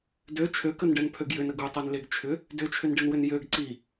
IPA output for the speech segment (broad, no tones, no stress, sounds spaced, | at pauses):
d ø t͡ʃʰ ø k ə n ɖ ɛ n pʰ ø ɡ j ʏ n ə ɡ u tˤ ɛ n l e ɡ t͡ʃʰ ʏ | d ʏ t͡ʃʰ ʏ n ɖ ɪ n w ʏ n j ø ɡ ǀ i